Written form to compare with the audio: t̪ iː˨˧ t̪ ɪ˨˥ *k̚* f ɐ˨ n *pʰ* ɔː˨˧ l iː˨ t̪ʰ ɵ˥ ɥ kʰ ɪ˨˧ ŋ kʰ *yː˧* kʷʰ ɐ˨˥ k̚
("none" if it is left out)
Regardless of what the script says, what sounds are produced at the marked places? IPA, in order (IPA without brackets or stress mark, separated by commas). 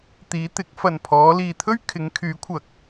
k̚, pʰ, yː˨˥